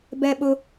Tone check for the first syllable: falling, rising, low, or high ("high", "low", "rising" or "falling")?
high